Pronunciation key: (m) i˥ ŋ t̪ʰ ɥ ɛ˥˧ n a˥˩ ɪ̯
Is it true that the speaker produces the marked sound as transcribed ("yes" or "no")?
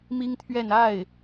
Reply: yes